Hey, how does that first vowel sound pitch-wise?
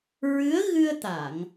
rising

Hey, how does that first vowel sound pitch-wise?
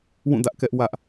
falling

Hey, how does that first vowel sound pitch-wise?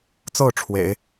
falling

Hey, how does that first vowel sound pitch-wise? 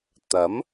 rising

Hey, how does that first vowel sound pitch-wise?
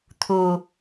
low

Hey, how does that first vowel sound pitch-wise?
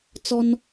high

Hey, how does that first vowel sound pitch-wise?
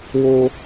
high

